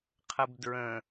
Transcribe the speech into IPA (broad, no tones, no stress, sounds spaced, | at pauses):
qʰ ə b d ɹ ə̃